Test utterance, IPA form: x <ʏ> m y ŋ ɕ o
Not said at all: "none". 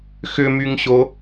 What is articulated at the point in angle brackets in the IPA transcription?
ʏ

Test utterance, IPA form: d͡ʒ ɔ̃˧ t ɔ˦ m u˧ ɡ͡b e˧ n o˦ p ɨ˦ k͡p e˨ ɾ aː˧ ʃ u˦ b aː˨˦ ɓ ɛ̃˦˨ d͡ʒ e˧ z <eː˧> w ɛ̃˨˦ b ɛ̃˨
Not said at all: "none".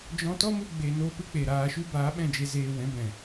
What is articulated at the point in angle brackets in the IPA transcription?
eː˧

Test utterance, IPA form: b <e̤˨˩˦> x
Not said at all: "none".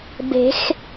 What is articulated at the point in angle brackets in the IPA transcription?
e̤˨˩˦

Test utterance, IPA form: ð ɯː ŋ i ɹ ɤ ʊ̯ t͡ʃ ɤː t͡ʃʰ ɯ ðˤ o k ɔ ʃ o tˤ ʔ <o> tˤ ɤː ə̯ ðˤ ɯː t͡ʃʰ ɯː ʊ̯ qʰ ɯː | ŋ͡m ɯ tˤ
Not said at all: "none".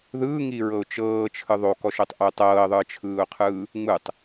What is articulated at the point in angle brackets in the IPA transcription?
o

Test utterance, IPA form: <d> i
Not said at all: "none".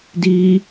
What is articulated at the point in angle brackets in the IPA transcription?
d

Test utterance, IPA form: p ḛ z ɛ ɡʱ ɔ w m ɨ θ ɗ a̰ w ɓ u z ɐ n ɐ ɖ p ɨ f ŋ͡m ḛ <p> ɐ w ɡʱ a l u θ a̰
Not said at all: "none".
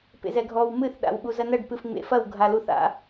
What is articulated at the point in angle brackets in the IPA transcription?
f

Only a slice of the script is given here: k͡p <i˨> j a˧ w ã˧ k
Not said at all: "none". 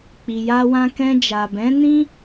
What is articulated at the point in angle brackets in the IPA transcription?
i˨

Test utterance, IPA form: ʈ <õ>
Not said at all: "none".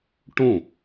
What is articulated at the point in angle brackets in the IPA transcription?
õ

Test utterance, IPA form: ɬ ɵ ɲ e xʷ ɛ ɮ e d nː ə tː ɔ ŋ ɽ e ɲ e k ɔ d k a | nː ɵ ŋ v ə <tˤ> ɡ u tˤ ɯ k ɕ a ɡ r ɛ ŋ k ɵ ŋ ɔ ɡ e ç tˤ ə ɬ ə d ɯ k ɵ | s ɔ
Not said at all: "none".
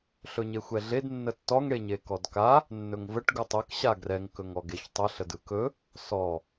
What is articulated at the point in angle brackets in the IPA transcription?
ʈ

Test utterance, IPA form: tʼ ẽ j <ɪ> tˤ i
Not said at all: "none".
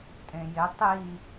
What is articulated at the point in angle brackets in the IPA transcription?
ɪ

